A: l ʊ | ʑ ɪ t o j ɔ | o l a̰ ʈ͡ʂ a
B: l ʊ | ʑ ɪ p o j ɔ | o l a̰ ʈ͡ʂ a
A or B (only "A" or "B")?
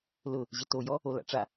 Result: A